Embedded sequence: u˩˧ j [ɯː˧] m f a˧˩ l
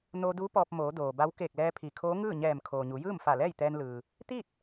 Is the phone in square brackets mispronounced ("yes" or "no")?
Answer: yes